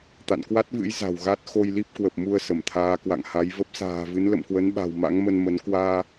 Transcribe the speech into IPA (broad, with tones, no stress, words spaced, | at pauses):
t̪a̰˧˨nkwa˦˥t̚vɨ̰˧˥j za̤˨˩wɣa˦˥t̚ xo˧jli˦˥p̚kwə˨˩p̚ mu˧ə̯ sə˧˩mt̪ʰaː˨˦kwa̰˧˨ŋha˨˦j və˦˥p̚sa̤ː˨˩vɨ˨˦n lə̰˧˨mkwə˨˦nɓa̤˨˩w ma̰˧˥ŋ mə˧nmə˨˦n kwaː˧